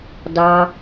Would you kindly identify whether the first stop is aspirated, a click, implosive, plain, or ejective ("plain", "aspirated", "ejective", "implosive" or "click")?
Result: plain